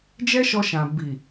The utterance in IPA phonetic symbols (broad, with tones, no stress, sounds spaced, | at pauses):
d͡ʒ ɛ˦ ʃ ɔ˧ ʃ ã˨ b i˨